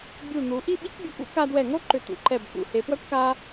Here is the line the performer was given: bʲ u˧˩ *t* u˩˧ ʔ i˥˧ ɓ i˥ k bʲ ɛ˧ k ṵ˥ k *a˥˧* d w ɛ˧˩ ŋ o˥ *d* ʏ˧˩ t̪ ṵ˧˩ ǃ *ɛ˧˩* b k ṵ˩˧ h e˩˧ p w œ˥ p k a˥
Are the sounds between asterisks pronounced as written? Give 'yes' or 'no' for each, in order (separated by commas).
no, no, no, yes